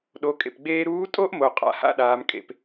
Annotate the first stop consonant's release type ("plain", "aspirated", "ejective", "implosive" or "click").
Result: implosive